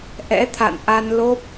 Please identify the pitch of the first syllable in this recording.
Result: rising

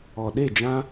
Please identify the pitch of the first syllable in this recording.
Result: low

